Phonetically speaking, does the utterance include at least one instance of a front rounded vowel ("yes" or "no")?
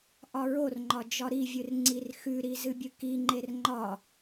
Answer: no